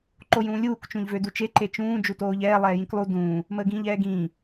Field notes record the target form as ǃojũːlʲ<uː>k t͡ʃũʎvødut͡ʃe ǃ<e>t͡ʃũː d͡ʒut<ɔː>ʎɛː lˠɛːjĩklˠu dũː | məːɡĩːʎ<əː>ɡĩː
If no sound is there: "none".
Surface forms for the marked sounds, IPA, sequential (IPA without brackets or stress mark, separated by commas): uː, e, oː, ɛː